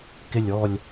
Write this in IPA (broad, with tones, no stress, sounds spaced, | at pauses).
k ɪ˨˩ lʲ ɔ˨˩ lʲ